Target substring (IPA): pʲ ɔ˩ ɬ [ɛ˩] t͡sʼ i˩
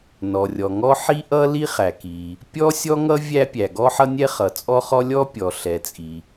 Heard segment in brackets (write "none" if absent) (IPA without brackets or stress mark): ɛ˩